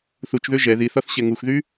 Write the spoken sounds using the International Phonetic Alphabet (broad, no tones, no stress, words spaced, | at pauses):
θut͡ʃðø ʒɛ ðiθɒθɕɛ ŋuxðy